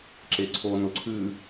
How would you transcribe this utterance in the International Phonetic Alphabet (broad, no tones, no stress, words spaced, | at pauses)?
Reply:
ǁeǀʰonʊ ǀʰʉ